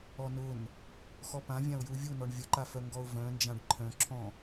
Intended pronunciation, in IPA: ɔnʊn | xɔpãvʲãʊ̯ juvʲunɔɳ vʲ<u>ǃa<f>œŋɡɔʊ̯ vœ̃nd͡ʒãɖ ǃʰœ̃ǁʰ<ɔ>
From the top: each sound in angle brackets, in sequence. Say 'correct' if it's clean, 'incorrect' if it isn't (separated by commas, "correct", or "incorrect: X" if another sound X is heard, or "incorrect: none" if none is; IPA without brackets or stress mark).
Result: incorrect: ʊ, correct, incorrect: ɔ̃